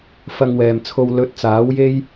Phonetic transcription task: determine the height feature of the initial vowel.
low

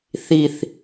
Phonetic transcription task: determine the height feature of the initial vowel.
high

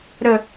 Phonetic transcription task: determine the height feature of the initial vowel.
mid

